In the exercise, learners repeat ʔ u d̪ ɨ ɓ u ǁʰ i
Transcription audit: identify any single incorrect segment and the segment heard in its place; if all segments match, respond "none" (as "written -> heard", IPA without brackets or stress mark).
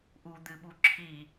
none